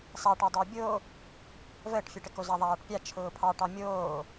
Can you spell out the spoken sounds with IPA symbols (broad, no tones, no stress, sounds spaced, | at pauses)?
sˤ a ʈ ɑ dˤ əː bʲ o | v əː ʈ fʲ ə ʈ ə k o z a ðˤ aː ʈ pʲ a t͡ʃʰ ʊː pʰ ɑ ʈ ɑ mʲ oː